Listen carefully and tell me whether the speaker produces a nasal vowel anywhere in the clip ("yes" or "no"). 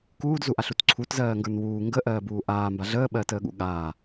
no